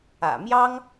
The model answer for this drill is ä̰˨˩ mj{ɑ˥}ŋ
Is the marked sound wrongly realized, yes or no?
no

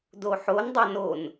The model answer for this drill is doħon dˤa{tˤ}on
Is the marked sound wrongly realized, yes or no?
yes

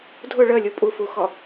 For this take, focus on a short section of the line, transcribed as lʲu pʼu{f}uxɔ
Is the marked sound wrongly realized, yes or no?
no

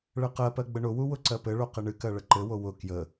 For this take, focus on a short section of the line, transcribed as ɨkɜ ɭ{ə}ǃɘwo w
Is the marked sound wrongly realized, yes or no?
no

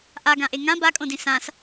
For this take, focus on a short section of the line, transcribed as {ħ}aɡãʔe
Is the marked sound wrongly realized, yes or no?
yes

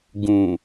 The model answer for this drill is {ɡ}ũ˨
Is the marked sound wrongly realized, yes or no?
no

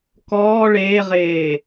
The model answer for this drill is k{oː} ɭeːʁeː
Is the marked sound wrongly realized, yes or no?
yes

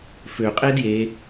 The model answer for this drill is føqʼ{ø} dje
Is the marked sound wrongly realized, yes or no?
yes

